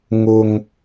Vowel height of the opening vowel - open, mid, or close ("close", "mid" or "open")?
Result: close